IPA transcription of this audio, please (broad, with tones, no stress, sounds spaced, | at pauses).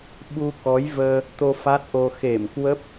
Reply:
ɓ u˧ k ɔ˨˦ j v əː˧ | t̪ o˧ f a˦˥ t̚ ʔ o˧ x e˧˩ m k w ə˦˥ p̚